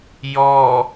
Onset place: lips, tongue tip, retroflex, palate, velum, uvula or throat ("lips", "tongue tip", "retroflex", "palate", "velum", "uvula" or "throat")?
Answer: palate